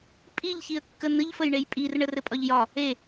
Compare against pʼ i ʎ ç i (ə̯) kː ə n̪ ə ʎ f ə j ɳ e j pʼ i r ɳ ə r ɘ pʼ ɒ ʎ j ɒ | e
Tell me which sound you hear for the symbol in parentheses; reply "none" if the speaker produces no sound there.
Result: ə̯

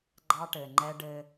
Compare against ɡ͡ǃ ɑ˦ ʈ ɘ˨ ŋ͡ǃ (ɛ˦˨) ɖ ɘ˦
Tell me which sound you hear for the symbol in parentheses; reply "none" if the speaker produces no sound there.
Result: ɛ˦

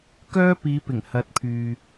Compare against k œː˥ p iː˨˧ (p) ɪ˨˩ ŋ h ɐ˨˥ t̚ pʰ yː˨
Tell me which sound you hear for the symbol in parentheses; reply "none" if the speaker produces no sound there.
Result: p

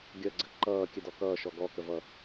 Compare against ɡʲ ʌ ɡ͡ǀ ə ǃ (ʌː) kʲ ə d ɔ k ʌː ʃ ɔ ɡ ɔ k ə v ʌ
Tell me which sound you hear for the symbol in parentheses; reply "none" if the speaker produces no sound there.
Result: ʌː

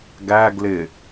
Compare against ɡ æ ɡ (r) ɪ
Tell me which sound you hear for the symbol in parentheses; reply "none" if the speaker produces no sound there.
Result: l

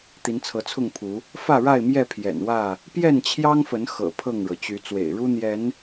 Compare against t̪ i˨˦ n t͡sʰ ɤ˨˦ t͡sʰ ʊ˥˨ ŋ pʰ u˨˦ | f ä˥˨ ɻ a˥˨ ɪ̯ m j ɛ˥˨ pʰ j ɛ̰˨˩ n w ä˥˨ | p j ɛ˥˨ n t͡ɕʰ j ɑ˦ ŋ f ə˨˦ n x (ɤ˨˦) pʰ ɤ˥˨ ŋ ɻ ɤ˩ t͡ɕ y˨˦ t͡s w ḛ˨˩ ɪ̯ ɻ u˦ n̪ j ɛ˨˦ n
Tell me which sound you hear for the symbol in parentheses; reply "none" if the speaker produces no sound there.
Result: ɤ̰˨˩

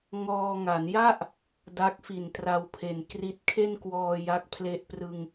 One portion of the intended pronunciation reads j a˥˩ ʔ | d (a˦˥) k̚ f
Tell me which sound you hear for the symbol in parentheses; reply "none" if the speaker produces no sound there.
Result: a˦˥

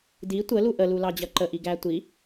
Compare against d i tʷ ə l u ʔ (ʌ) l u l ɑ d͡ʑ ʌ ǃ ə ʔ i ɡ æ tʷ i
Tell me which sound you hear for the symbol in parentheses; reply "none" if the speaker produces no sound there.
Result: ə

